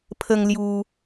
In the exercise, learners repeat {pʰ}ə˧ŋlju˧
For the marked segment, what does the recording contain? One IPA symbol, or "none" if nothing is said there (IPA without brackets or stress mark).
pʰ